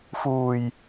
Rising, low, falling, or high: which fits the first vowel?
low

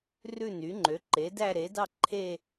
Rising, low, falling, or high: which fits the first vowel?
falling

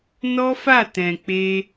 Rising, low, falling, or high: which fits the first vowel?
high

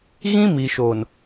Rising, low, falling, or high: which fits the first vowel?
high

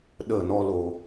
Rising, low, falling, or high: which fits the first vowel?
falling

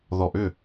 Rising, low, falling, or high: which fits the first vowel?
low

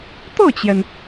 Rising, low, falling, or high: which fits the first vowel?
falling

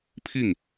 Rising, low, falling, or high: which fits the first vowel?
falling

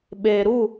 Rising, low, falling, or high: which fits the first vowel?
low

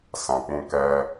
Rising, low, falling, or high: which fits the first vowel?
low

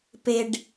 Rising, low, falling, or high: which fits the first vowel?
low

